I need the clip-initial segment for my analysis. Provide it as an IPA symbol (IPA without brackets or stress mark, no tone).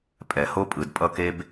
pʼ